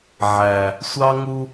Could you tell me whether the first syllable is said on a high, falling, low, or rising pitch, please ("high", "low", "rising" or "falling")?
low